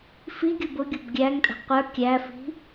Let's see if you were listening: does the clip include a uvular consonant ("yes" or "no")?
yes